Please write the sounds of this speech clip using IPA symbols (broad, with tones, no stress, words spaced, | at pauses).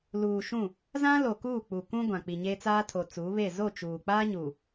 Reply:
luː˨ʃũ˦˨ | zã˦lo˨kuː˦˨ k͡pu˨kũ˦ɡʷã˨ k͡pi˨ɲe˦t͡saː˦tʰo˨ t͡suː˨˦βe˦˨ zo˦˨ t͡ʃuː˨ k͡paː˦ɲuː˨